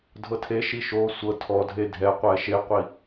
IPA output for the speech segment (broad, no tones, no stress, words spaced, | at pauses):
dʱɤtʰeʃi ʃo sʷɤ tʰɔdʱe dʱɛqʷɛ ʃeqʷi